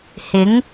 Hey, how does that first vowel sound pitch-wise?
rising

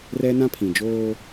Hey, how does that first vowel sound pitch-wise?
high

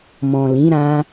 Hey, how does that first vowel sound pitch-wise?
low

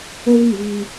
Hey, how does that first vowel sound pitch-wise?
high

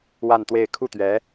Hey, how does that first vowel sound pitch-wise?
falling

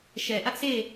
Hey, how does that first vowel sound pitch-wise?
low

